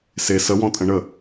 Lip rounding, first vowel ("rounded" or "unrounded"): unrounded